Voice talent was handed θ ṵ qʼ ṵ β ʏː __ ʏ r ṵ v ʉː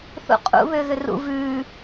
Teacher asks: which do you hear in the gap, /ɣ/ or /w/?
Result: ɣ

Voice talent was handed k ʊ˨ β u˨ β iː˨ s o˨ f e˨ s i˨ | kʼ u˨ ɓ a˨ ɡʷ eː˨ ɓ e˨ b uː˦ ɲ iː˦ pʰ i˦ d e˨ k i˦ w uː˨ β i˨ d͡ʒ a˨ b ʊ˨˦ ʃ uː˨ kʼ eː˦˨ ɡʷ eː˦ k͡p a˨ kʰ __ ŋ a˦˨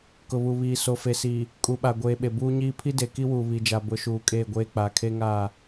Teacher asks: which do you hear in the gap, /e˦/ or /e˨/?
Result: e˦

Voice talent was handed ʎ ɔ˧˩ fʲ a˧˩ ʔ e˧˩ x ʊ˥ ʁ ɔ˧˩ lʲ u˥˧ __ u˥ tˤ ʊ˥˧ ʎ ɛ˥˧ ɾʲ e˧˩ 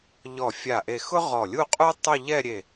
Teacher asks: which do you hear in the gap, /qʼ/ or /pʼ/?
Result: qʼ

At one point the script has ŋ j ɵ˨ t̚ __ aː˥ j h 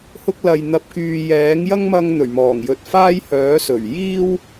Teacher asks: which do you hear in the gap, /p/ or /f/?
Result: f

